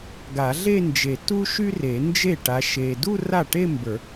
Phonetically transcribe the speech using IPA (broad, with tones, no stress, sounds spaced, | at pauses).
ɡ a˨˩˦ ɮ e˥˧ n d͡ʒ e˨˩˦ t u˥ ʃ y˥ r e˨˩˦ n d͡ʒ e˥˩ ʈ a˨˦ ʃ e˨ d u˥˧ r a˥˩ ʈ e˥˧ m b ə˞˨˩˦